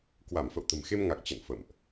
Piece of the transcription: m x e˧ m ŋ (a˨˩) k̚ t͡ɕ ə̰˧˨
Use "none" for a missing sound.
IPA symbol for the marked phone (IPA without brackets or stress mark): a˨˩